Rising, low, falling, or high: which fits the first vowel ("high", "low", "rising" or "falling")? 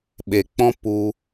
low